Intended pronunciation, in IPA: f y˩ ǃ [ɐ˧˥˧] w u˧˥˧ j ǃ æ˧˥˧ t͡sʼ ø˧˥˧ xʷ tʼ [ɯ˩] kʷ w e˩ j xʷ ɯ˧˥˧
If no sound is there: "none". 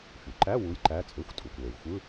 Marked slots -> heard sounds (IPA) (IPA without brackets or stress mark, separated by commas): æ˧˥˧, u˩